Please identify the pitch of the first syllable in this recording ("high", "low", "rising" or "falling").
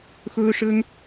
high